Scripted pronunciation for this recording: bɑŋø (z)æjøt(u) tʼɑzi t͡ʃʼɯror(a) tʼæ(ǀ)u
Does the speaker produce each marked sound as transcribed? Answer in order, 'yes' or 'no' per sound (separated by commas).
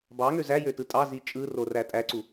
yes, no, no, yes